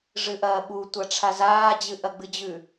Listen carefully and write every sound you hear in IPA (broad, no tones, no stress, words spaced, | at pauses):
ʐɨʔɐːɓu tʷaʈ͡ʂʰazaː d͡ʑɨʔɐɡ͡bɨd͡ʑʉ